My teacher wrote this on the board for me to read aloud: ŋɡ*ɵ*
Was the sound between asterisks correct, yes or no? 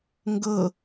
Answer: no